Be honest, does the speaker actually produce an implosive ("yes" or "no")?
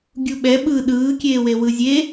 yes